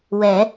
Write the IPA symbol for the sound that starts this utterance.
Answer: w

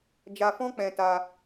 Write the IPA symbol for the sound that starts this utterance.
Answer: d͡ʒ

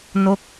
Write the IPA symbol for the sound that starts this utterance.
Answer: n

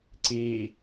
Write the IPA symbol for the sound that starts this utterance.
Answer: ǀ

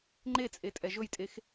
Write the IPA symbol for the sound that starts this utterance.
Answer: ŋ͡ǃ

